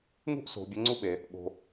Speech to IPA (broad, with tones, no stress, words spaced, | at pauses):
ŋṳ˥ʔso̤˩˧ bʲə˧˥ŋ͡ǀu˥ɓe˩˧ | ɠo̤˧